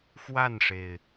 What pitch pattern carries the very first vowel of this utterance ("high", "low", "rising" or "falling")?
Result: falling